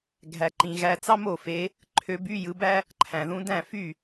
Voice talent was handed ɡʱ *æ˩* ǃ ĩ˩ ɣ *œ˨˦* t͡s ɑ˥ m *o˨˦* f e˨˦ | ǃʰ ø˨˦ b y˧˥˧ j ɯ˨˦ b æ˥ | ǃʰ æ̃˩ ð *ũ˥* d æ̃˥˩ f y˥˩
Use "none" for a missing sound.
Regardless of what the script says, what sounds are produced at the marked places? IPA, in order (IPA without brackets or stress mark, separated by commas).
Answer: æ˩, æ˨˦, o˥˩, ũ˨˦